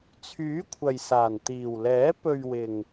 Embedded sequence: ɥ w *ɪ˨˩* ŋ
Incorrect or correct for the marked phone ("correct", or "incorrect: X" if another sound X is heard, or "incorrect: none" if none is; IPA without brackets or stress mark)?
correct